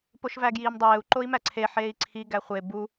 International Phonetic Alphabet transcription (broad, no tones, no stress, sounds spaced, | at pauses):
p o ʃ v æ ɡ j iː m dˤ eː u̯ ǃ o i̯ m æ ǀʰ e ħ eː i̯ ǀʰ i ɡ æ χʷ e b u